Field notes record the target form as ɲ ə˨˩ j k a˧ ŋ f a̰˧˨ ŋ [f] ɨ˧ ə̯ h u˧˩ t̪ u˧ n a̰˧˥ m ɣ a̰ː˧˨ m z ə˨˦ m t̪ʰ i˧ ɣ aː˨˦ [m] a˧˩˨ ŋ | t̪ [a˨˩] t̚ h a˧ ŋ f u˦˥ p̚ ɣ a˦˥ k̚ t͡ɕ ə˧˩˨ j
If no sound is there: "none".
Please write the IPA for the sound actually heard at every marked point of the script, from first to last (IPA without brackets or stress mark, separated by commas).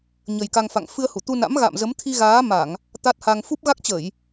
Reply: f, m, a˦˥